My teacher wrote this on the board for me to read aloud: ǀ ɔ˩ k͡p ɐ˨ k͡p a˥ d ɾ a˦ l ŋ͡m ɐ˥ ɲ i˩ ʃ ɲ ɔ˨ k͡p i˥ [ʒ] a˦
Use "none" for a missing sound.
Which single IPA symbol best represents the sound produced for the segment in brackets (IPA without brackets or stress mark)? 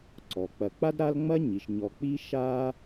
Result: ʃ